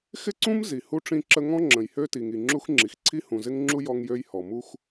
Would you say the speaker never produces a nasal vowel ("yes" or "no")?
no